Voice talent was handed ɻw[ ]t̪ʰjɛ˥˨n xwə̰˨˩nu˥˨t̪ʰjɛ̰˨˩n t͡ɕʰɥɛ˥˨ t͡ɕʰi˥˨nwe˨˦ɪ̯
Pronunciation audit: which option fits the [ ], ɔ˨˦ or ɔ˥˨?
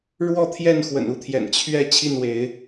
ɔ˥˨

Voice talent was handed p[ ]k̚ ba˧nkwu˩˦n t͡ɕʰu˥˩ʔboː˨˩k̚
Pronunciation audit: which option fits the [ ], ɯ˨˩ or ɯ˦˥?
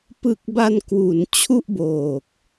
ɯ˨˩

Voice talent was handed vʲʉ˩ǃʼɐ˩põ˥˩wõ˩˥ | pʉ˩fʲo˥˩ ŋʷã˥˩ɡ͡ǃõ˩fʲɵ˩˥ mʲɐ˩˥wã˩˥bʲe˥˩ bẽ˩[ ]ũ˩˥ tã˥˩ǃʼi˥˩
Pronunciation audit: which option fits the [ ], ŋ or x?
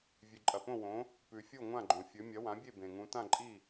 ŋ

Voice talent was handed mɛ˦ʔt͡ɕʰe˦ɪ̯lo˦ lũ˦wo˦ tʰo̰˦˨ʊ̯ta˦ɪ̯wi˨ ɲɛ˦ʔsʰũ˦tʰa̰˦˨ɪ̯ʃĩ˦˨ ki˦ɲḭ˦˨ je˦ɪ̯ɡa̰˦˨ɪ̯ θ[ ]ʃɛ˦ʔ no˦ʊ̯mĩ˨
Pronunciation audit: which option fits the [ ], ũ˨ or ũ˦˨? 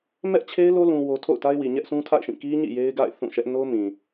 ũ˦˨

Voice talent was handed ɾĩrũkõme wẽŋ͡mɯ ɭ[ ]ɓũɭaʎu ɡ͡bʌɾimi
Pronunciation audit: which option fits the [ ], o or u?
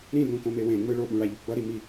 o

